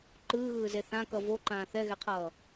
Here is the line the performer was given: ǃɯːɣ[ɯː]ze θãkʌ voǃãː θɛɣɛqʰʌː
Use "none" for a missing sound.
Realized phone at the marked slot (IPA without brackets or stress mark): ɯː